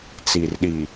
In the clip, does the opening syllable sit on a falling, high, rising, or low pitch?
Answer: low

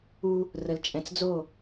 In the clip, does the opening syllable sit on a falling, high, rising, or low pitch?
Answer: high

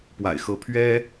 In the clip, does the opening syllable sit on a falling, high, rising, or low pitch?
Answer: low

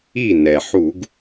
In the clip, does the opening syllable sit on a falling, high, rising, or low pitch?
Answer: falling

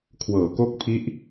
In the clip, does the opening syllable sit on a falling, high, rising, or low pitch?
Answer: low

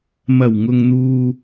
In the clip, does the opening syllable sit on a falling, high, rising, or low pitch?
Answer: low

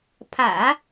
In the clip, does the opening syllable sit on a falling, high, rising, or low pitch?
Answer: low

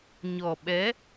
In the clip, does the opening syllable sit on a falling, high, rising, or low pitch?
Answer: low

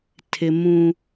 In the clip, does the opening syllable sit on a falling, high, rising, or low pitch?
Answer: high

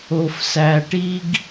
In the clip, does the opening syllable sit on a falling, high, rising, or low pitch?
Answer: low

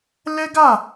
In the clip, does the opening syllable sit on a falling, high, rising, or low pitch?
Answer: high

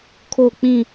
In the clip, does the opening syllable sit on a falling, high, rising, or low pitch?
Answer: falling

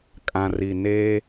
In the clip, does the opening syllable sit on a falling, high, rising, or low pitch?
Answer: low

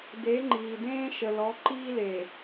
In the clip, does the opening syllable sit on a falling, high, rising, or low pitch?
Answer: rising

